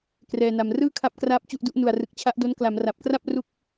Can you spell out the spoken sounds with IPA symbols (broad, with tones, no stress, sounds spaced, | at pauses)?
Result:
k r ɛː˧ n a˧ m r ɯː˥˩ kʰ a˦˥ p̚ k r aː˦˥ p̚ t͡ɕ u˥˩ ʔ d u˦˥ ʔ n u˨˩ a̯ r ɯ˨˩ k̚ t͡ɕʰ a˦˥ ʔ d o˦˥ n k l a˩˦ m r a˨˩ p̚ k r a˥˩ p̚ r u˥˩ k̚